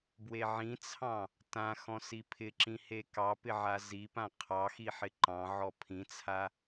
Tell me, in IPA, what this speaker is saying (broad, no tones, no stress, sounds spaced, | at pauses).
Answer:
b w e ʕ ĩ t͡sʰ ɑ̃ | t ã x ɔ̃ s i pʰ ɪ ǁ ĩ h e k ɑ p ɪ ʕ a z i p ã qʰ ɑ x i ħ ɪ ǃ ɑ̃ ʕ ɔ pʰ ĩ t͡sʰ a